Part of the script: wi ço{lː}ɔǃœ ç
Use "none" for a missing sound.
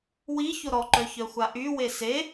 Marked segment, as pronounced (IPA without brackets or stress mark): ɾ